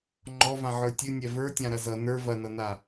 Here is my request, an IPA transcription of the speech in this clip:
ŋ͡ǃ ɔ v ã ʕ ə˞ tʲ ɨ nʲ ɛ v ə˞ tʲ ã ɾ ɐ z ʌ n ə˞ v ɐ n ʌ n a

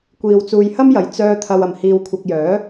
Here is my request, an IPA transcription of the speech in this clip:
kʷ iː˨ w t͡s uː˨ j h ɐ˥ m j ɐ˨˩ j t͡s œː˧ t̪ʰ ɐ˨ w ɐ˨˩ m h iː˨ w kʷʰ ɐ˨ k̚ j œː˨˥

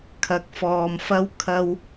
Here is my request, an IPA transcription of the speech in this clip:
kʰ ɐ˨ k̚ f ɔː˨ m f ɐ˧ w kʰ ɐ˧ w

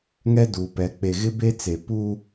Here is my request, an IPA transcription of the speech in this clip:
ŋ ɛ˦ d uː˨ p ɛ˨˦ k͡p e˨ ɣ ɪ˦ b e˦ t͡s e˨ p u˦

